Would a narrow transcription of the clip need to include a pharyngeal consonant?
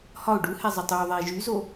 no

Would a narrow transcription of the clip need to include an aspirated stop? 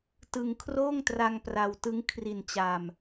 yes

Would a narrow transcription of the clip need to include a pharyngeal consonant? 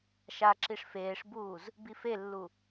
no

